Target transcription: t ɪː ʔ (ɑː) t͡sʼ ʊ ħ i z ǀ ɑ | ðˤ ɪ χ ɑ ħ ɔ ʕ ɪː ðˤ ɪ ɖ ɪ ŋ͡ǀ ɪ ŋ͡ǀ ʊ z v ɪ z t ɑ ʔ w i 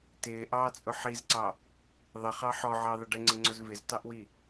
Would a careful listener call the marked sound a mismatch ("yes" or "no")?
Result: no